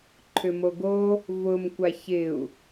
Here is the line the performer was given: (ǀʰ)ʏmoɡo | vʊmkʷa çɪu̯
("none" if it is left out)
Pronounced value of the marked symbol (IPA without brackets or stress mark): ǃʰ